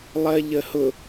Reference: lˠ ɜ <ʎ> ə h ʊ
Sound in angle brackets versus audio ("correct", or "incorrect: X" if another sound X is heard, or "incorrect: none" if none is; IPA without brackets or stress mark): correct